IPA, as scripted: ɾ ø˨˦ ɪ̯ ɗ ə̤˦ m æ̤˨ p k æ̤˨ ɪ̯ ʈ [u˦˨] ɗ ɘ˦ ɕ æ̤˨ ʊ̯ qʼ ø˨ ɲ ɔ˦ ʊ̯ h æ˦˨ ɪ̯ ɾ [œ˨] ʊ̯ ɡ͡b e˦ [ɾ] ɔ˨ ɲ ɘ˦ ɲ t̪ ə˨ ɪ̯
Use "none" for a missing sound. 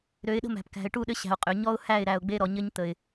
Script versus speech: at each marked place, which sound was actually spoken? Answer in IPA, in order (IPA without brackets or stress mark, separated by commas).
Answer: u˦˨, æ˨, ɾ